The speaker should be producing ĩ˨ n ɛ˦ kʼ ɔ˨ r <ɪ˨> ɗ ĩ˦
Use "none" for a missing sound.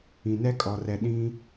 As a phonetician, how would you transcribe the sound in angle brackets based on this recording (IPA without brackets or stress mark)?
ɛ˨